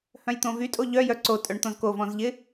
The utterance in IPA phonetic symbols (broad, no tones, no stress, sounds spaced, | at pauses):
h œ̃ j t̪ õ v y tʼ o ʎ œ j œ ǀ o tʼ œ ɳ t̪ õ z k o v ɔ̃ z ʎ ɪ